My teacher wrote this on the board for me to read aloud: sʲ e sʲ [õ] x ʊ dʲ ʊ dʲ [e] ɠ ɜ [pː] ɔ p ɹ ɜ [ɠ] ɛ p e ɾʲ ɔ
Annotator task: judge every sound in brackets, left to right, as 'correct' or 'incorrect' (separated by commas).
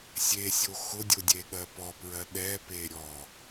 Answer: incorrect, correct, incorrect, incorrect